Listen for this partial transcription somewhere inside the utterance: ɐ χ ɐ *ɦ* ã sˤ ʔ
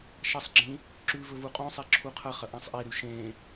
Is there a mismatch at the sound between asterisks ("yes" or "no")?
yes